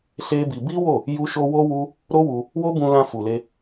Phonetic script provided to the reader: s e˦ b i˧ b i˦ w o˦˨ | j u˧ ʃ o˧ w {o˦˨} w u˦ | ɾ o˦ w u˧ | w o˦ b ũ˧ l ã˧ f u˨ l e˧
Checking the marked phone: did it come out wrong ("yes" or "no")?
yes